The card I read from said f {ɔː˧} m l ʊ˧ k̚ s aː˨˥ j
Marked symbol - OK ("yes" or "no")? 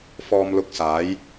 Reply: yes